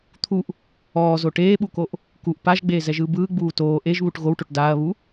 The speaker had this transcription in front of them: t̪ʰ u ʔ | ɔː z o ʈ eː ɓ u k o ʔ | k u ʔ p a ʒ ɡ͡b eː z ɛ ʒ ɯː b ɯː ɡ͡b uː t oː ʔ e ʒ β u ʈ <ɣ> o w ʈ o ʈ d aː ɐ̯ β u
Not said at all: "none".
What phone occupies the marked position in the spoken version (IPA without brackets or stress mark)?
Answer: ɣ